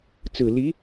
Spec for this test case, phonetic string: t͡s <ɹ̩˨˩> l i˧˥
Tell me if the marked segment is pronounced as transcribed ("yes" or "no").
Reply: yes